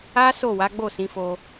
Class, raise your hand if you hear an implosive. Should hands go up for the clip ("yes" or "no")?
no